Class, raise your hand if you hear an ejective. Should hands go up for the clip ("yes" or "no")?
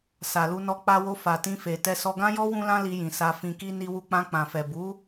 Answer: no